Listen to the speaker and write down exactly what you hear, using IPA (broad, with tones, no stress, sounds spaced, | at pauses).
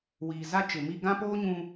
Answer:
w iː˨ z a˦ t͡ʃ ɪ˨ m i˦ ɡ ã˦ p oː˦ ɲ ũ˦